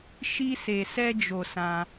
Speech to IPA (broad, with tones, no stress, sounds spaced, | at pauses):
ʃ i˧ s e˨ s ɛ˧ d͡ʒ o˨ s ã˧